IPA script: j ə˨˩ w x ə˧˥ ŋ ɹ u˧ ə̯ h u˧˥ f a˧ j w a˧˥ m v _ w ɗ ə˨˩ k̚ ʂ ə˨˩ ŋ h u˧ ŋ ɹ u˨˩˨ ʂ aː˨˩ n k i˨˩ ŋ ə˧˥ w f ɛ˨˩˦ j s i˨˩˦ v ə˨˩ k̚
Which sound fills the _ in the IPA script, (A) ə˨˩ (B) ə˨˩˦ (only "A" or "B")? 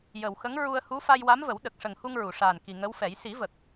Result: B